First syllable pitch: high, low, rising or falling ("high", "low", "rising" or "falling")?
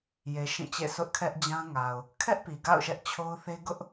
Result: low